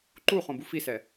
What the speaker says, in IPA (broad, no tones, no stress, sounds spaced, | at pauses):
ǃ u χ õ b u f i s ɛ